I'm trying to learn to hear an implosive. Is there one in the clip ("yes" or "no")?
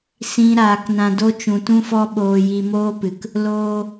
yes